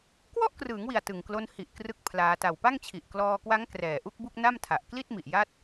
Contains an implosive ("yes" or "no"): no